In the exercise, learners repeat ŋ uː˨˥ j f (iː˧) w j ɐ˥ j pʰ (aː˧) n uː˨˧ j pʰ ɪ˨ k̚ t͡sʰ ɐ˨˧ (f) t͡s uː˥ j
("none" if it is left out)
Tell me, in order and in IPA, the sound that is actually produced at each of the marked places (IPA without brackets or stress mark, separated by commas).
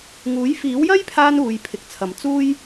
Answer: iː˨˥, aː˧, m